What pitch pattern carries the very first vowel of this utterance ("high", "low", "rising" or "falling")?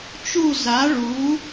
falling